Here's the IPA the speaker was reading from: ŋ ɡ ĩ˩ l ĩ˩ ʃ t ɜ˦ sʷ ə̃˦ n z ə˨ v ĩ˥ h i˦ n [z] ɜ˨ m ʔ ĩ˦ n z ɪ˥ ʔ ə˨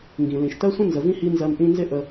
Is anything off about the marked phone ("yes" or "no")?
no